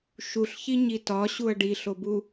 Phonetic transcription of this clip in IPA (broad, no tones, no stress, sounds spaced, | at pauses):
ʃ u ɬ ç i ɲ i t ɒ ɕ u ɐ̯ ɖ i ɬ o b u